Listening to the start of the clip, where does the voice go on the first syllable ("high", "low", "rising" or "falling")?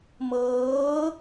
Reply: rising